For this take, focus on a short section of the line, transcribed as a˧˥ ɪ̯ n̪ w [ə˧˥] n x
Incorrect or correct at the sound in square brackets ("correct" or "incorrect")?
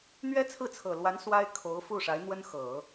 incorrect